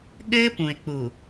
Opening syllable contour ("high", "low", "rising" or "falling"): high